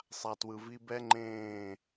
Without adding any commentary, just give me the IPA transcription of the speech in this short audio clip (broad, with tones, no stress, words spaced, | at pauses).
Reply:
sˤa˨twɯ˨ vi˧bɛ˦ ŋ͡ǃẽː˦˨